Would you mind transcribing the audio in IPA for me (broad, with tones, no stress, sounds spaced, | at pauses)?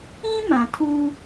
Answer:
ĩ˦ m ã˨ tʰ uː˦